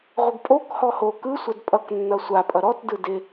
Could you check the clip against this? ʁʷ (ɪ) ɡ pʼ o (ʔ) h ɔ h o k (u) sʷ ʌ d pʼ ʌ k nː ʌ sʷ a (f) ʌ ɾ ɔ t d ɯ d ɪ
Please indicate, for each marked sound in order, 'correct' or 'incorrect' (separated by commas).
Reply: incorrect, incorrect, incorrect, incorrect